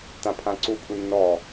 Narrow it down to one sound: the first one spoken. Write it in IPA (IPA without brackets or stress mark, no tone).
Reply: t